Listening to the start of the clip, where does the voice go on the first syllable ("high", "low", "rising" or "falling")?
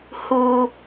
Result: low